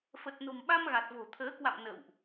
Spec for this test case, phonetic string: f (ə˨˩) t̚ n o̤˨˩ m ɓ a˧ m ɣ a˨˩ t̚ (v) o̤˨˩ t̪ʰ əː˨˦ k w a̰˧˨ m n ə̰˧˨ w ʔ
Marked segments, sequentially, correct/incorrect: correct, correct

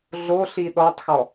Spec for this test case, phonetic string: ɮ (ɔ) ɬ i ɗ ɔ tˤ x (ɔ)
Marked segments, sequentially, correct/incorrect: incorrect, correct

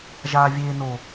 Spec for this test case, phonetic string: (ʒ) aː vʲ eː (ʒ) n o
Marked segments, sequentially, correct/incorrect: correct, incorrect

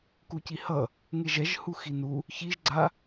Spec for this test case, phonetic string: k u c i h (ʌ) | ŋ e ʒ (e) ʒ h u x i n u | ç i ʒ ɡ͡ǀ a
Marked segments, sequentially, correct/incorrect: correct, incorrect

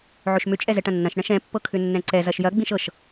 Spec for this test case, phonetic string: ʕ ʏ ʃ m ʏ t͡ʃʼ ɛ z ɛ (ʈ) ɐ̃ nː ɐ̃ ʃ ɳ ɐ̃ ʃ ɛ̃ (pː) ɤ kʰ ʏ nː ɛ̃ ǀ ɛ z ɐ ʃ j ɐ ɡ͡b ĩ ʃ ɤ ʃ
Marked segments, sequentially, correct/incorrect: correct, correct

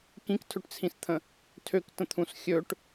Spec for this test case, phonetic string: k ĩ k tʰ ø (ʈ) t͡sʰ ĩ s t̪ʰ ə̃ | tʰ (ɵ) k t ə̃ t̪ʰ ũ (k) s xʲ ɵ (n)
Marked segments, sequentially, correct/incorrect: correct, incorrect, incorrect, incorrect

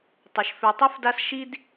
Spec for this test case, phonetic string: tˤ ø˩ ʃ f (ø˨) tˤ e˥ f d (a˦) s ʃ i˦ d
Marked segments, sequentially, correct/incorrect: correct, correct

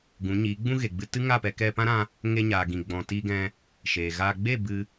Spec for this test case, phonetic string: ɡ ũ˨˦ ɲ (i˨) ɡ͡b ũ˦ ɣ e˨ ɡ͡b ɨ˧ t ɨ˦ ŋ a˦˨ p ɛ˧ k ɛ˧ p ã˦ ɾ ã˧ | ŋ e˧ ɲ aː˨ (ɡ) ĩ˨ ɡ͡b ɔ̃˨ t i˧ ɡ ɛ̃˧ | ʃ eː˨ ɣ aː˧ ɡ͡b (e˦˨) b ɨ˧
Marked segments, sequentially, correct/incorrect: incorrect, correct, correct

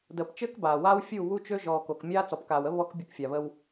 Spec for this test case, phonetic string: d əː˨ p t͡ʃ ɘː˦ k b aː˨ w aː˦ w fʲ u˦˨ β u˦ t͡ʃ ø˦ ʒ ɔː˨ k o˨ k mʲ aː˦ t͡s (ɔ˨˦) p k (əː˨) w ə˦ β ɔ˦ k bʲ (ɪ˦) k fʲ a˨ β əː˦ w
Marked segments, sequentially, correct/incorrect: incorrect, incorrect, incorrect

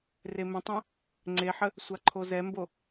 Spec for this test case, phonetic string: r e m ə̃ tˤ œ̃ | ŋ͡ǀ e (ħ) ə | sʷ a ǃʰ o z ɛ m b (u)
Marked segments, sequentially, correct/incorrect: correct, incorrect

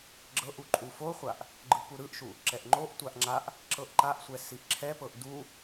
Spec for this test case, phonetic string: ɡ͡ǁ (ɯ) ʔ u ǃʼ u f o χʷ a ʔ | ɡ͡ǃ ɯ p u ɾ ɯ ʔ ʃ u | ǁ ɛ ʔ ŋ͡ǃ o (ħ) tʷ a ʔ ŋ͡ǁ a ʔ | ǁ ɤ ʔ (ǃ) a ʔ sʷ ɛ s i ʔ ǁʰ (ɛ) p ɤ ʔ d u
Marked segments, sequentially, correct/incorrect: incorrect, incorrect, correct, correct

